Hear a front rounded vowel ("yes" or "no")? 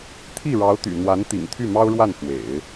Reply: yes